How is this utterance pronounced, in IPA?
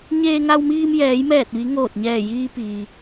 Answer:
ɲeː˧ŋa˧wmiː˧m jɛː˩˧jmɛː˧˩t̚ʋi˩˧ ŋoː˧˩t̚ɲɛː˧˩jiː˧ piː˩

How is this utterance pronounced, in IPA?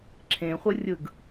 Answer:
ǁʰẽχʷɯ rʲɯɡ

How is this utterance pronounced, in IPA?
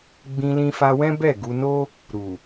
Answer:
ɡ͡bĩ˧lĩ˧fa˧wɛ̃˦ bɛ˦˨ɡu˧no˦ | ɾu˨

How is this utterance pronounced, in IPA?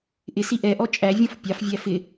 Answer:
ʔɪsi ʔɛʔɔ t͡ʃʼævʲɔ̃f pʲɑfvʲæ fɪ

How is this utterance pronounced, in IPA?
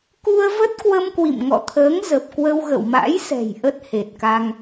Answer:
ku˧ə̯və˦˥t̚kwə˧m kwḭ˧˨mŋɔ̰˧˨t̪ʰəː˨˦ŋzə˨˩p̚ kwə˧wɣə̰˧˨wma̰˧˥jsɛ̤˨˩j ʔə˦˥t̚he˨˩t̚ka˧ŋ

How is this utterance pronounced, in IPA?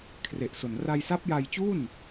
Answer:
kʰre˨˩ʔso˨˩n ra˧jsa˦˥p̚ja˧jt͡ɕu˥˩n

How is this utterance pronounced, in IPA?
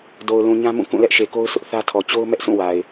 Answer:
do˨ʊ̯lũ˨ɲã˦mũ˦˨ kũ˦˨lɛ˦ʔʃe˨ko˦ʊ̯ sʰʊ˦ʔθä˦tʰɔ˨ t͡ɕo˦ʊ̯mɛ˦ʔsʰũ˦˨ wa˨ɪ̯

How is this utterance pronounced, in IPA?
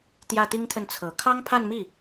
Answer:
t̪jä˥˩t̪i˥ŋt̪ʰə˥˩n t͡sʰɤ˨˩ kʰɑ˥ŋpʰa˥˧nmi˥˩

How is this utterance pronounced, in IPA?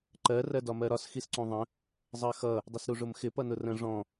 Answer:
ǃɜ rɜdɒmɜɾɒs xisǀũðˤə̃ | zˤɜxʌ | dˤɪsɾuʐʊmxɪ pʌnʊrə̃ ʐɔ̃

